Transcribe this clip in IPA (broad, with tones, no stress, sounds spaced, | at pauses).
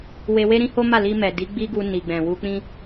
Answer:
w e˧ w e˦ ɾ ĩ˦ h o˦ m a˦˨ l i˧ m ɛ˨ d i˨˦ ɡ͡b i˦ ɡ u˧ n i˨ ɡ͡b ɛ̃˨ w u˧ k͡p ĩ˦